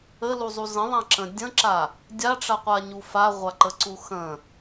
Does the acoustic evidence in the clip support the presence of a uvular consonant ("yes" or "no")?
yes